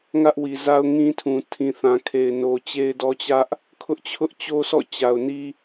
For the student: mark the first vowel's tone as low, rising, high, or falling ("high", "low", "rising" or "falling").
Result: high